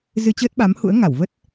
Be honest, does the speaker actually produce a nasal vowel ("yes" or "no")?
no